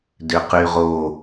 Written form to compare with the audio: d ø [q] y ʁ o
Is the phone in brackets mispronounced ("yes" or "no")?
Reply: no